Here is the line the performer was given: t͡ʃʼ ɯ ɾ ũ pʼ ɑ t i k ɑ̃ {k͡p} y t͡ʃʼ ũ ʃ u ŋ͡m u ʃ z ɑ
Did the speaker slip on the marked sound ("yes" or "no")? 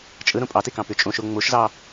yes